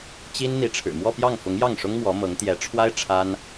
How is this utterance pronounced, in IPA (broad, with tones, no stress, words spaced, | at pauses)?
t͡ɕi˥n n̪i˧˥ʈ͡ʂʰɻ̩˨˩ mwɔ˥˧pjɑ˥˩ŋfʊ˧˥ŋ jɑ˥˩ŋʂʊ˥ŋ mwɔ˧˥mɤ˧˥ŋ t̪jɛ˧˥ʈ͡ʂʰwa˥ɪ̯ ʈ͡ʂʰa˥n